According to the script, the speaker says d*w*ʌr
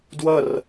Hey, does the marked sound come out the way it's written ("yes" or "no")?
yes